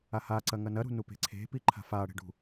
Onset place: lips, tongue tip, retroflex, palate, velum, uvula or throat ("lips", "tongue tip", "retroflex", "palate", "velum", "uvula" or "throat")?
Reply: throat